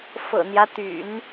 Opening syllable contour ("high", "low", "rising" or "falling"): low